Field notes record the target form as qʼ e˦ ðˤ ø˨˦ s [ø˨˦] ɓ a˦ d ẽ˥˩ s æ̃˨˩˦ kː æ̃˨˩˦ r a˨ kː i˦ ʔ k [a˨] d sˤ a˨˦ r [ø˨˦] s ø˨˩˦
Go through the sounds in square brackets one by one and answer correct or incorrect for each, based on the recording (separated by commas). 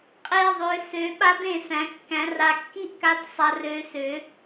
correct, incorrect, correct